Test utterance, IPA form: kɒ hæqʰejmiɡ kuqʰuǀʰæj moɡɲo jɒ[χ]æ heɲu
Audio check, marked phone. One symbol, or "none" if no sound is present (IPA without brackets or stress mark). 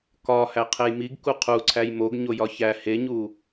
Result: ç